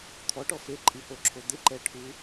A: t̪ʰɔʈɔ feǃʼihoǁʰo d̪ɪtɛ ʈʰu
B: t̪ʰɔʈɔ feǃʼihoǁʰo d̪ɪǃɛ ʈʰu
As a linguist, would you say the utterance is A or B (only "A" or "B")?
B